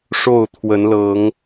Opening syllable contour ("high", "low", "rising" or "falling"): falling